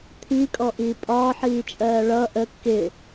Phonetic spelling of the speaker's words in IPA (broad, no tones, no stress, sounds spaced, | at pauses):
t̪ʰ i kʼ ɔ ʔ iː pʼ ɒː ħ iː t͡ʃʼ ɜː ɭ ʌ ʔ ə kː ɪ